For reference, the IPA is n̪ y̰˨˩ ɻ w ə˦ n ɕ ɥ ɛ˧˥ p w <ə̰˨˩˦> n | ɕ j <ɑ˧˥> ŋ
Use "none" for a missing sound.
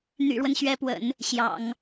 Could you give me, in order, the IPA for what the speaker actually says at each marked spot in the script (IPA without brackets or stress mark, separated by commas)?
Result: ə̰˨˩˦, ɑ̰˨˩˦